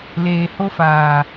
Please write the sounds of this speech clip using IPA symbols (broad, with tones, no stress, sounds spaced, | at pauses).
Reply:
l eː˨ h o˦ f aː˨